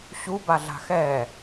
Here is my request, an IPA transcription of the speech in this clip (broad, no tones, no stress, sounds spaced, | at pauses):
ɕ u b a ɮ a̤ x ɛ